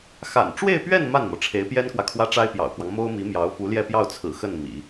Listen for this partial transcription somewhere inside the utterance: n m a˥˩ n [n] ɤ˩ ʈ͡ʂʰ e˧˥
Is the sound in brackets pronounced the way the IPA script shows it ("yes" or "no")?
no